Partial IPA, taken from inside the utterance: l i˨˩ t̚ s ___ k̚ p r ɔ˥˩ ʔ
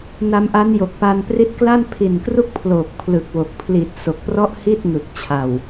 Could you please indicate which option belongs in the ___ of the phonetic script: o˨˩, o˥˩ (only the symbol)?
o˨˩